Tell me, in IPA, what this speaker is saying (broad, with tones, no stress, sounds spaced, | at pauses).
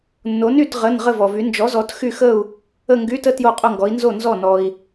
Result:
nː o˨˥ n y˥˧ t ʁ ə˧˥˧ n ʁ ə˥˧ v ɔ˨ v y˨˥ n d͡ʒ ɔ˨˥ z ɔ˨˥ t x y˥˧ x ə˥˧ u̯ | ə˥˧ ŋ ɡ y˧˥˧ t ə˥˧ t j o˥˧ qʼ o˥˧ ŋ ɡ ɔ˨˥ i̯ n z o˥˩ n z ɔ˥˩ n ɔ˨ i̯